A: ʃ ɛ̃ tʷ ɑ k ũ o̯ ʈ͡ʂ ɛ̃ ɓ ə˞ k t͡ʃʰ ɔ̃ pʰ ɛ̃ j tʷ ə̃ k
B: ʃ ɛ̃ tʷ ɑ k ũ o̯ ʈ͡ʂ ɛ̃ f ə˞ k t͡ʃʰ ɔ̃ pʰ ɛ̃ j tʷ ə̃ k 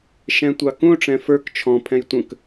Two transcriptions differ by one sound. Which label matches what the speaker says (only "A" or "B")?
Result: B